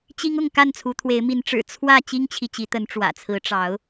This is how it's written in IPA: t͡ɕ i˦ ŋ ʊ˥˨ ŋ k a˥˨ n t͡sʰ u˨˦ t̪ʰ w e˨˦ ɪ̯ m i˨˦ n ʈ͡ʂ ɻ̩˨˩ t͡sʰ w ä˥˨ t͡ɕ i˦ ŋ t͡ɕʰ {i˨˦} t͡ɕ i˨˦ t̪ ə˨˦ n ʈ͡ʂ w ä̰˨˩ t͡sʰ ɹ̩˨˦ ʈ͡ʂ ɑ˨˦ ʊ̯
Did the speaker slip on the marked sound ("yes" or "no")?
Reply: yes